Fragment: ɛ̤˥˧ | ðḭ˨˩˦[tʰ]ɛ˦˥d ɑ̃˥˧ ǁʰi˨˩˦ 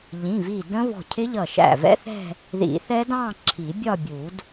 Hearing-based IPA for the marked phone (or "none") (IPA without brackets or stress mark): θ